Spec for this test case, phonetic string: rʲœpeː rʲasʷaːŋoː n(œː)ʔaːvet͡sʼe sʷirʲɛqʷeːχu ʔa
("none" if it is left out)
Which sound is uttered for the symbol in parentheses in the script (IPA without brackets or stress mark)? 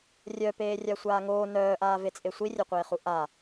œː